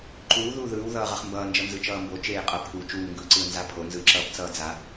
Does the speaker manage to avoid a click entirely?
no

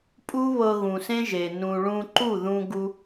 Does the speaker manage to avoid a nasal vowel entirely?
no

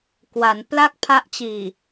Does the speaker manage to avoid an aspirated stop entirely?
no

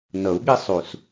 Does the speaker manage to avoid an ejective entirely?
yes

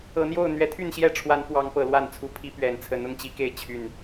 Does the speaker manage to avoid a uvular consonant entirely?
yes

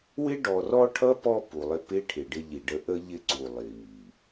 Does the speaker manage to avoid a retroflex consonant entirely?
no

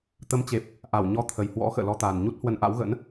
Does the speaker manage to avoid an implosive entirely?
yes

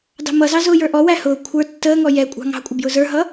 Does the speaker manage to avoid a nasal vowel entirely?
yes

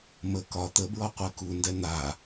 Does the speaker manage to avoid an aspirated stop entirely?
yes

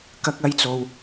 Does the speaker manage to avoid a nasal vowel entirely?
yes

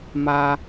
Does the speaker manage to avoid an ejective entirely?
yes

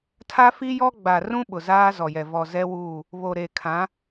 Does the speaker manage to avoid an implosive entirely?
no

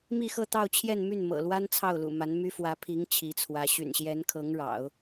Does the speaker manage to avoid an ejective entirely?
yes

